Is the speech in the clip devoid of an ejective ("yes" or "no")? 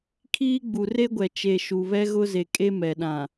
no